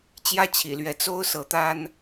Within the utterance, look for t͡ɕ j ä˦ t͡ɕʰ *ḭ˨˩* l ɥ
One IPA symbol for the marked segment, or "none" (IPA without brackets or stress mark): ḭ˨˩